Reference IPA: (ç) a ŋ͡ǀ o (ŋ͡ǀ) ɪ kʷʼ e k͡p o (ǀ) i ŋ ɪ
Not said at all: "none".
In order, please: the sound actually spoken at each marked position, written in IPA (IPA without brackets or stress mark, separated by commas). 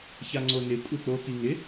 ç, n, k